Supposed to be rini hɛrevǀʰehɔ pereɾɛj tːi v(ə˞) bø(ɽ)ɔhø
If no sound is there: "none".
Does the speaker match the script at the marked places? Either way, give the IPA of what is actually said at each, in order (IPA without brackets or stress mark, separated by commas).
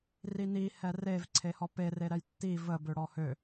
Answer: ə, ɽ